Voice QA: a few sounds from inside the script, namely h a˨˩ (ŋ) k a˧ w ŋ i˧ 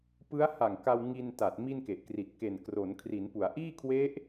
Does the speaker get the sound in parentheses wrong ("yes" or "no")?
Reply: no